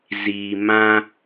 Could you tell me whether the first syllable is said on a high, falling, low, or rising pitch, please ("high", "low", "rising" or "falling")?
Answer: low